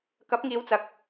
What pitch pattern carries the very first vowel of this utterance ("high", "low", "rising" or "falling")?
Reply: rising